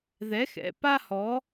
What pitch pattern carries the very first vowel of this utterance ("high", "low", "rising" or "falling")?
rising